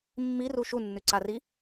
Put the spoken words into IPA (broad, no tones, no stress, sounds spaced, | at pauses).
mː i r u ʃ u nː ʉ ǀ a r i